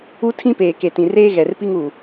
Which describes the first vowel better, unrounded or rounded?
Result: rounded